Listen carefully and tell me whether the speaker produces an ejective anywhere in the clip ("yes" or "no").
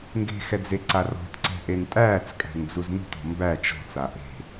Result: yes